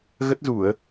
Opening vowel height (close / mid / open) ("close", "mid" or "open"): mid